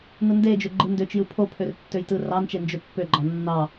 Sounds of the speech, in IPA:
nɯnded͡ʒø ɡ͡ǃɯndøt͡ʃjɯ pʰopʰør tːøjtɯrɑnt͡ʃe nd͡ʒøpːøɡ͡ǃɑ nːɑ

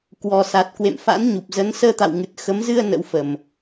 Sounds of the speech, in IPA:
kwɔ˨˩sa˨˩t̚kwḛ˧˨mfa̰˧˥n ɲu˨˩p̚zə˨˦n səː˧t̪a̰˧˨wŋɨ˨˩t̚ xə˨˦mzɨ˧ə̯ nə̰˧˥wfə˨˩m

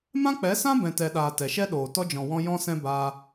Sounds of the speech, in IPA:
mã˦k͡pɛ˨˦sã˦ bɛ̃˨tɛ˨ɗaː˨ tɛ˨ʃɛ˦ɗoː˨ tɔ˧d͡ʒɔ̃˨wɔ̃˧ jɔ̃˧sɛ̃˧ baː˧

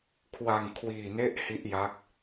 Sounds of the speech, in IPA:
kʰwa˧ŋkʰwiː˧ ne˦˥ʔ hi˦˥ʔja˦˥k̚

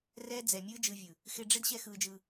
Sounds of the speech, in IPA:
rɛː˦d͡zɛ˨mʲɯː˦ d͡ʒɯ˧vʲɯ˨ | xɪ˧ɖ͡ʐɪ˦d ɕɛ˦xɯː˧d͡ʒɯː˧

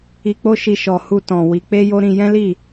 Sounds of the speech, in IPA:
i˨k͡po˧ʃi˨ ʃɔ˨ hu˧tɔ̃˨ wi˨˦ k͡pe˦jo˦ɾĩ˧ jɛ̃˦li˦˨

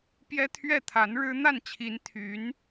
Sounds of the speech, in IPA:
pjɛ˥ t̪ʰɥɛ˥˩t̪ʰa˧˥n ɻɻ̩˥ n̪a˥˩nt͡ɕʰi˧˥n t̪ʰy˧˥n

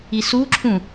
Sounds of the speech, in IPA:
isuǁʰũ

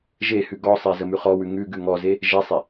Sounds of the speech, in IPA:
ʒehʉ ɡɔsˤe zəmʉχɔwʉ ŋʉ ɡʉŋɔze | ʒesˤe

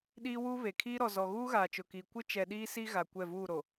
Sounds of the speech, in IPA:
ɗiː˦wuː˦βe˨ kʰiː˦ɾɔ˨zɔ˨ ɣuː˦ɣaː˨t͡ʃʊ˨kiː˨ kʷɪ˦t͡ʃɛ˨ ɗiː˦ siː˦ ɣa˨kʷɛ˦˨vuː˦˨ɾo˨

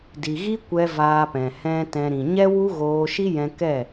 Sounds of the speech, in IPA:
di˨ɣi˦kʷɛ˧ vaː˧pɛ̃˨ hɛ̃˧ tɛ̃˧ ɾĩ˨ ɲɛ˦wu˦ɣoː˧ʃi˦ jɛ̃˧kɛ˦˨

